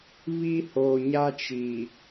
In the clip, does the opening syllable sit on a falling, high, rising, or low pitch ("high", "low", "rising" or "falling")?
high